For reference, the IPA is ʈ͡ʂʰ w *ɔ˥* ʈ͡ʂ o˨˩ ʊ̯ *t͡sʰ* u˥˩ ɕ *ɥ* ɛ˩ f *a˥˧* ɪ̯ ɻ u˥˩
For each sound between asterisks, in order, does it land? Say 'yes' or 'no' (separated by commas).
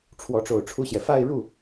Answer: no, no, no, yes